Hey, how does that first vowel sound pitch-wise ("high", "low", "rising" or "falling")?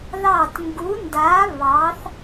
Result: falling